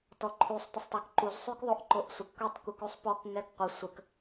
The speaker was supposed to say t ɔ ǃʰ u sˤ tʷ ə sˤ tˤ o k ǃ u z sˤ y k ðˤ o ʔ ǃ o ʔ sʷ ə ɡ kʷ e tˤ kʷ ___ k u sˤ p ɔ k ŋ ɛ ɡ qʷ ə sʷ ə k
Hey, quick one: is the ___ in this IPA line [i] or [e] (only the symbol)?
i